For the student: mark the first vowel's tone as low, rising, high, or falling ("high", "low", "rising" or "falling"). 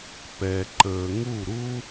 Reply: low